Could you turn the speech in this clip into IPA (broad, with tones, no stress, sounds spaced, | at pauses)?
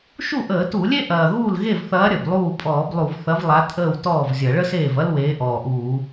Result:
ʃ u˥˩ ʔ əː˧˩˧ t u˧˩˧ lʲ e˥ ʔ ɐː˨˩ ɣ uː˥˩ l ɣ e˥˩ v θ ɐː˨˥ ɾʲ ə˨˩ b lˠ uː˥˩ pʼ ɔː˧˩˧ b lˠ u˧˩˧ v θ ɐ˨˥ v lˠ a˨˥ tʼ əː˥˩ w t ɔː˥˩ v zʲ ɐ˧˩˧ ɭ ə˥ s eː˥˩ v ɐ˥ l w eː˨˥ ʔ ɔː˨˩ ʔ uː˧˩˧